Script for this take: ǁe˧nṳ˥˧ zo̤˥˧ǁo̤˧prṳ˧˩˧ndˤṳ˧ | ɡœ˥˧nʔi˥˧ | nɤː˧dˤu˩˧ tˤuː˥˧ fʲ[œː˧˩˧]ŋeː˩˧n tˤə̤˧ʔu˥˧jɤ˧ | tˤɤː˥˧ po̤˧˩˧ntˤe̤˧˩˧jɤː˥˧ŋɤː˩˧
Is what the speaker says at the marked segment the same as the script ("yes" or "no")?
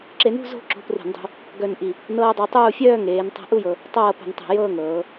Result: no